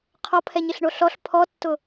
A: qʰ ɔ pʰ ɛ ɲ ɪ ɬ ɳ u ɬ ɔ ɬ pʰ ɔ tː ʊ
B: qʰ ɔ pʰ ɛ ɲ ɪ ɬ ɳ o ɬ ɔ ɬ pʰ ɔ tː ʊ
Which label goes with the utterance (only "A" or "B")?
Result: B